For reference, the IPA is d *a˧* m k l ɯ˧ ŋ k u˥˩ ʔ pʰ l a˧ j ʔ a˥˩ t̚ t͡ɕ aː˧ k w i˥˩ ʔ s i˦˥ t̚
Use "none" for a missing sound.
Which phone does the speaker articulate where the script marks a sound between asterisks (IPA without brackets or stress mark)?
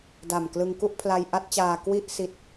a˨˩